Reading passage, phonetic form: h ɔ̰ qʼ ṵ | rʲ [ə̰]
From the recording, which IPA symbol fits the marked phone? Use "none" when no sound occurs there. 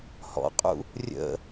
ə̰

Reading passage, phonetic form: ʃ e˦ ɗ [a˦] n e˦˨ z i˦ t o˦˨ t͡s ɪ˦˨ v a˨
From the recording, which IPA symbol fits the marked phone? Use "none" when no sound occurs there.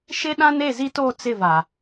ã˦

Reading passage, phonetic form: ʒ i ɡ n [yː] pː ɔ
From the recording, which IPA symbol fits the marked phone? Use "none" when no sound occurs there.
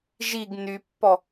y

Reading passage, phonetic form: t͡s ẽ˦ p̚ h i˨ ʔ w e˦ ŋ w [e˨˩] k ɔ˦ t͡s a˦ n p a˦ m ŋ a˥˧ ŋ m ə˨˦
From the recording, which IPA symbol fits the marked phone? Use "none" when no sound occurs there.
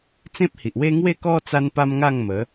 e˥˧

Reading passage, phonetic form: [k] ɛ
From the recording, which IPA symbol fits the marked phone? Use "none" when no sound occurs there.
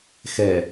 x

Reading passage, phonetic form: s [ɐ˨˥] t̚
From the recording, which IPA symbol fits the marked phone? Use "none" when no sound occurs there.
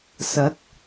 ɐ˨˥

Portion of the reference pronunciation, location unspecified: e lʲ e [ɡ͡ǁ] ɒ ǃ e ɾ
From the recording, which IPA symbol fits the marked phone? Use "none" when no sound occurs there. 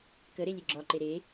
ɡ͡ǁ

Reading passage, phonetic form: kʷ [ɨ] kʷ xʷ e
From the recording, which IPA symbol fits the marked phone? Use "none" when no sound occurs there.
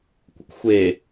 ə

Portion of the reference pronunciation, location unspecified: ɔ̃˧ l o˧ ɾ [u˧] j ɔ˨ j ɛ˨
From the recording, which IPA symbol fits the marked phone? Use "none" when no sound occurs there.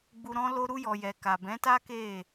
u˧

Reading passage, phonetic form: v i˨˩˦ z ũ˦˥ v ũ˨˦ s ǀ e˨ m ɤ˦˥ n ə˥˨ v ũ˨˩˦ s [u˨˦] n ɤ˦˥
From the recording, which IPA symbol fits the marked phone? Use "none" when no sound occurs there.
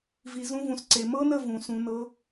ũ˨˦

